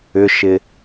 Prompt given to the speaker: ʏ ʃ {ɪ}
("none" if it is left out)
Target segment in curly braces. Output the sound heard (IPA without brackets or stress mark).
ɪ